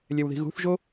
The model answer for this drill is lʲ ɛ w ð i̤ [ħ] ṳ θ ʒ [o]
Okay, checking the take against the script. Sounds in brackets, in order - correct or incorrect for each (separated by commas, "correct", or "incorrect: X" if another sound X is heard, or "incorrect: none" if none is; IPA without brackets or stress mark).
incorrect: ɣ, correct